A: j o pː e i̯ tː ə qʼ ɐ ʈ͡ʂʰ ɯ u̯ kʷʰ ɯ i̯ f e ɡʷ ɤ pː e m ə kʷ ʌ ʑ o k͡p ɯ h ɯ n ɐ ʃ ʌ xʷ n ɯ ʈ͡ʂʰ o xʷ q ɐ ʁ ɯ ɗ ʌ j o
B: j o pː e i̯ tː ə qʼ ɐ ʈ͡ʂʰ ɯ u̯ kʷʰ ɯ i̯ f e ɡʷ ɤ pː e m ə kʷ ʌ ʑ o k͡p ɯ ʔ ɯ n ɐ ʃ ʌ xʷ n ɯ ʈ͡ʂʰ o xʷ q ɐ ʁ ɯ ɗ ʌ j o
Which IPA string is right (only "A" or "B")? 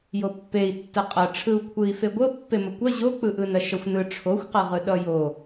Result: B